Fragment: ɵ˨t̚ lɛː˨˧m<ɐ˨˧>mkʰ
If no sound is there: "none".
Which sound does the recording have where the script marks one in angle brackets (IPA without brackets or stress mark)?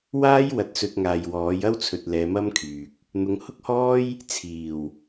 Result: ɐ˥